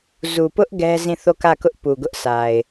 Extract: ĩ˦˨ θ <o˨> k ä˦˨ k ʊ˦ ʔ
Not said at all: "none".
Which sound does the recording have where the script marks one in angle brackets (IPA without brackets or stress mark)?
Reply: o˦˨